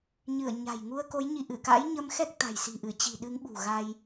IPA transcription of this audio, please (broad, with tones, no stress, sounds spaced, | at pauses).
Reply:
ɲ ɨ˧˩ ə̯ ɲ a̤˨˩ j ŋ u˧ ə̯ k o˨˦ j ɲ i˨˦ ʔ ɨ˧˩ k a̰˧˥ j ɲ ə˧ m x ɛ˦˥ k̚ t̪ a̤˨˩ j s i̤˨˩ ʔ ɨ˧˩ t͡ɕ i̤˨˩ ɗ ɨ˨˦ ŋ ɓ ṳ˨˩ ɣ a˧ j